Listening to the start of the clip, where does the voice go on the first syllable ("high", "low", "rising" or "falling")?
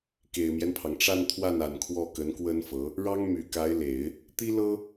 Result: low